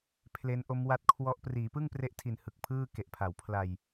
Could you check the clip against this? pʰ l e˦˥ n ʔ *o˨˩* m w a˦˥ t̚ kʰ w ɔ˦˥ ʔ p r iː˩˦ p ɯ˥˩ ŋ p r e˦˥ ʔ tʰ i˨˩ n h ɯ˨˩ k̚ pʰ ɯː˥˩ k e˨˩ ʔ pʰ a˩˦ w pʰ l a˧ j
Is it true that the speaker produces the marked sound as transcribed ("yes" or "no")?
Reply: no